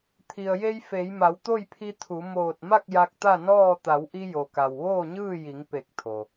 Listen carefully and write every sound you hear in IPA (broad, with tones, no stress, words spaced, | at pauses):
t̪ʰi˩ə̯je˧j fe˩˧j ma˩˧wt̪o˥˨jpʰi˧ t̪ʰu˩˧ moː˧˩t̚ma˥˨k̚ ja˧k̚t̪a˥˨nɔː˥˨ t̪a˩˧wʔi˧jo˩ka˩w ʋoː˥˨ɲɯː˥˨ji˩˧ŋ pe˧˩k̚t̪ʰo˩